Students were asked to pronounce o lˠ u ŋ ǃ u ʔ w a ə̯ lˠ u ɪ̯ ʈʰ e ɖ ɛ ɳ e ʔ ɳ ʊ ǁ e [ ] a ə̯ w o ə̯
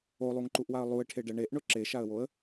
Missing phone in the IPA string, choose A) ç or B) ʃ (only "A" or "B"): B